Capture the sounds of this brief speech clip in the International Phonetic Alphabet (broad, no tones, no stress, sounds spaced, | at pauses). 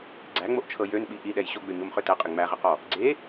ɡ͡ǀ æ ŋ͡m o ʔ t͡ʃʰ ɤ j ø n ɓ i ʔ i ɗ ɛ j ɕ o ɡ͡b ø ɲ o m χ ø t ɛ qʼ ɪ ŋ͡m æ ʁ ɪ q ɔ | ɡ͡ǀ e